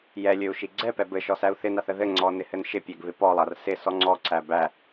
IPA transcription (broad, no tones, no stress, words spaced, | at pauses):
jɛlʲɵu̯ ʃiɡ͡ǀɛpɛ bɘʃɔ sæu̯θɪnaθ əðɘŋ͡ǀɔ nɪhɘnʃɪpʲɛɡ βɪpɔlˠar sɪ sɔŋ͡ǀɔǀæ bæ